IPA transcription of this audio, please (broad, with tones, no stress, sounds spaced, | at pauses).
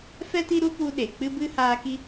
f ɛ˦ t i˦ ɾ u˦ p u˧ ɗ e˨ k͡p ɨ˦ b ɨ˦ h aː˧ k i˦